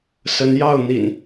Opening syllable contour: rising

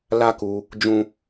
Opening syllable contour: high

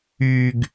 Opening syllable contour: low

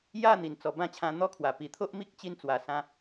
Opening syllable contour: falling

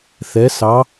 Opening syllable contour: rising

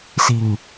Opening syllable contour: low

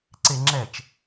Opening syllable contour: low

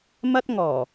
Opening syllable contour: high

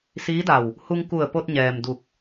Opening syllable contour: rising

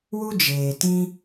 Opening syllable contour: high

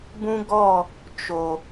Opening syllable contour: high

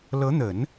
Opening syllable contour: rising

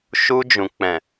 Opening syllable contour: low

